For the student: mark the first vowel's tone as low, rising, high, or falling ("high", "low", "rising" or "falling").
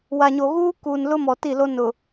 low